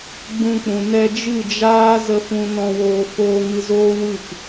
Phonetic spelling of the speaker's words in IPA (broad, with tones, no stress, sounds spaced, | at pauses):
ɡ͡b ũ˨ k͡p ũ˨ n ɛ˧ d͡ʒ ɨ˦˨ d͡ʒ aː˦ z ə˦˨ f ũ˧ n ɔ̃˧ w oː˧ f oː˧ ŋ ɨ˧ z oː˦ w ɨ˦˨ k